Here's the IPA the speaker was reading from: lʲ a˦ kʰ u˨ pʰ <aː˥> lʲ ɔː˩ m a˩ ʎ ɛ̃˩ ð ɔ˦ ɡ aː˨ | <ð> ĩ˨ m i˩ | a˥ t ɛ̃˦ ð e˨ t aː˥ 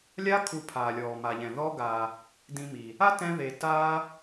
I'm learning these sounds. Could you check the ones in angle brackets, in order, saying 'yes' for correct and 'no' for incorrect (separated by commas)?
no, no